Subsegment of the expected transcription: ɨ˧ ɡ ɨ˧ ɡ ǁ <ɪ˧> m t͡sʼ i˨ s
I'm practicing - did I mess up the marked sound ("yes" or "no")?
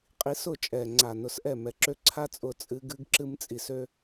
yes